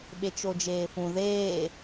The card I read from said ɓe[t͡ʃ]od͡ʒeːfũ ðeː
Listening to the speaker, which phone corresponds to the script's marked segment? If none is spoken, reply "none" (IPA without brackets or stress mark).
t͡ʃ